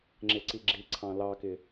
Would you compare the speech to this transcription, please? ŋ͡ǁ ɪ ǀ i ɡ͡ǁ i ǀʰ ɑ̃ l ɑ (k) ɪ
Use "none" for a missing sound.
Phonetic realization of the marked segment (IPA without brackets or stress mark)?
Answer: k